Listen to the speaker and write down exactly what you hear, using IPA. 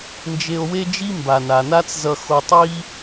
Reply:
n d͡ʒ e˧ o̯ w e˥ d͡ʒ i˥ m b a˩ n a˩ n a˥ t͡s z ʌ˧ x o˧ tˤ i˥

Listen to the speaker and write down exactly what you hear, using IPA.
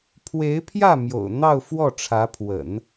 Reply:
pʰ w e˧˥ ɪ̯ pʰ j ä˥˩ m j o̰˨˩ ʊ̯ n̪ ɑ˥˧ ʊ̯ f w ɔ˥˩ ʈ͡ʂʰ ä˧˥ pʰ w ə̰˨˩˦ n

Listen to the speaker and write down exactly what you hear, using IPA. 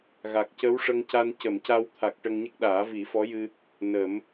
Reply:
ɣ a˨˩ k̚ c ə˧˥ w ʂ ə˧ ŋ c a˧ n c ə˨˩˨ m c a˧ w t̪ʰ a˨˩ k̚ ʈ ə˧ ŋ ɲ ə˦˥ k̚ ɗ aː˨˩˦ v i˨˩˦ f ɔ˧˥ j ɨ˧ | n ə˨˩˦ m

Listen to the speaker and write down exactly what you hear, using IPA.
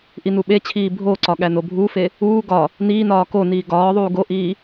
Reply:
ʔ i n u ɓ e t͡ɕʰ iː bʱ o ǀ ɒ ɠ æ n o bʱ uː f e | uː ɡ ɒ | n iː n ɒː k o n iː ɡ ɒː ðˤ uː ɡ o ʔ iː

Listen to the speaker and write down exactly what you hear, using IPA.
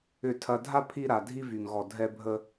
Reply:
ʏ˨ tʰ ɐ˨ dʱ a˦ pʰ i˦ ɾ a˨ dʱ i˦ v y˨ ŋ ɣ ɔ˨ dʱ ɛ˦ bʱ ə˦

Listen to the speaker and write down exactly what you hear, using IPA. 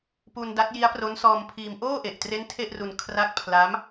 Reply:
p u˧ n d a˦˥ t̚ j i˦˥ a̯ p r o˦˥ n s ɔː˧ m pʰ iː˧ m ʔ oː˥˩ ʔ e˨˩ ʔ t r e˦˥ n tʰ e˥˩ ʔ r u˧ n kʰ r a˦˥ k̚ pʰ l a˦˥ m

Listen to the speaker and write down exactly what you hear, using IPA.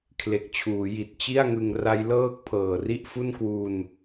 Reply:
kʰ l e˨˩ k̚ t͡ɕʰ uː˩˦ j i˨˩ t̚ t͡ɕ i˥˩ a̯ ŋ ɯ˧ ŋ r a˦˥ j l ɤː˥˩ k̚ pʰ ɤː˨˩ r i˥˩ ʔ f u˥˩ n k w u˧ n

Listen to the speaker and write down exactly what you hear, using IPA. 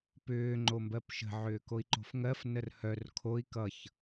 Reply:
p ʏː ŋ͡ǃ o m b ɜ p ʃ ə̤ ʕ ʏː k o i̯ ǃ o̤ f ŋ ɜ f n ə r h œ r kʰ o i̯ k ʌ ç

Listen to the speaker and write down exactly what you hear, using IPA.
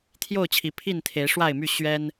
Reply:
t̪ʰ j o˥˨ ʊ̯ t͡ɕʰ i˨˦ pʰ i˥˨ n t̪ʰ e˨˦ ɪ̯ ʂ w a˥˨ ɪ̯ m y˥˨ ɕ ɥ ɛ˦ n

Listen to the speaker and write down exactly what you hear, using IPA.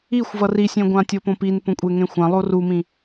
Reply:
i xʷ v ʌ r i sʲ ẽ ɡʷ ã tʲ o p õ p i n p õ kʷʼ e ŋ ẽ xʷ ã lˠ o r u m ĩ

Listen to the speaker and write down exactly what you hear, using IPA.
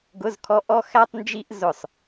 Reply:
ɡ ʊ˧˥˧ z kʰ ɔ˧˥˧ ʔ ɔ˥ x æ˥ tˤ n d͡ʒ i˥ ʔ z ʊ˦˨ sˤ

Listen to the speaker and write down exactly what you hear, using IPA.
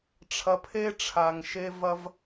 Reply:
ʈ͡ʂʰ ɐ˧ pʰ e˥ ʈ͡ʂʰ a˩ ŋ ʃ e˧ v ɐ˧ v

